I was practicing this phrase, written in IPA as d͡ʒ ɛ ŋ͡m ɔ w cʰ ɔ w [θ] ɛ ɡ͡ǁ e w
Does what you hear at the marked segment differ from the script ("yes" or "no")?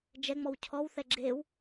no